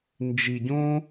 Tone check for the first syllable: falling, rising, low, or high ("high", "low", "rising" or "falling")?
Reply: low